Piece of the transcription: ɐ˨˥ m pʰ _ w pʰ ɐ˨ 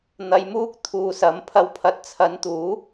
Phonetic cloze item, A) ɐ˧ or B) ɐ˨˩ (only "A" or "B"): A